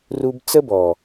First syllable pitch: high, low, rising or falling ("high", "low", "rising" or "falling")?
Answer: high